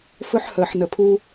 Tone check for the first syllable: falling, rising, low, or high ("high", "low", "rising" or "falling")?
high